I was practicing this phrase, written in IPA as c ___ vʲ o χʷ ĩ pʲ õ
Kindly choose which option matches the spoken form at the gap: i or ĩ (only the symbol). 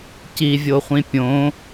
i